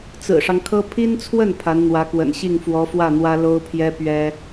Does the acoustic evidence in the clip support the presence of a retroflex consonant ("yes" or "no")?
yes